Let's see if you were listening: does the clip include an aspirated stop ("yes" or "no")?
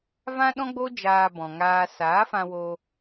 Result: no